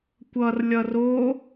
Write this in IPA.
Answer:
kʷ ʌ r lʲ ʌ r o

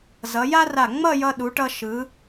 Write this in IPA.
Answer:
z ʌ˩˧ j a˥ r a˧˩ ŋ͡m ʌ˥˧ j ʌ˧ ɗ u˩˧ ʈ ʌ˧ ʃ ɯ˩˧

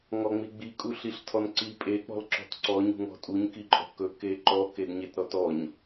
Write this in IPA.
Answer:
ŋ ɔ ŋ͡m i ɡ͡b i kʼ u ɬ i ɬ tʰ ɔ n ǀ i pʼ e k͡p ɔ̤ l ǁ ɔ̤ t ǀ ɔ ɲ ṳ ŋ ɔ̤ tʼ u ɲ k i ǃʼ ɔ̤ k ɵ k e ǃ ɔ k e d ɲ e t ɾ ɔ t ɔ ɲ

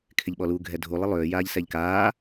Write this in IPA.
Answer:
kʰ ɪ ʎ ɓ ɔ l u ɡʱ ɛ dʱ u lˠ ɪ lˠ ʏː j aː ʎ s ɛ ʎ k aː

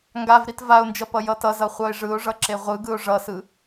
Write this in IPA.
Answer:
ŋ ɡ a v ɾ i t v a ʊ̯ n d͡ʒ ʌ p ʌ j ʌ t ʌ z ʌ χʷ ʌ ɪ̯ ʐ ɯ ʊ̯ ʐ ʌ ǁ e ʁʷ ɯ ɡ ɯ ʊ̯ ʐ ʌ s ɯ

